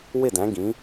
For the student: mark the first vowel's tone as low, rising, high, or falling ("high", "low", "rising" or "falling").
falling